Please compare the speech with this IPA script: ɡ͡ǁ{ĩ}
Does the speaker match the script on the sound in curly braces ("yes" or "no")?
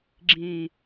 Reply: yes